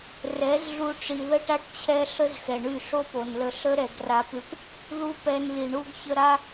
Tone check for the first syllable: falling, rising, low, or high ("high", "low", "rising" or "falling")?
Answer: rising